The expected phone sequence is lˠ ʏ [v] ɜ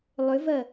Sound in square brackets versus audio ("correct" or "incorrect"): correct